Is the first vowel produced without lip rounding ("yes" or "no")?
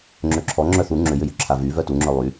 no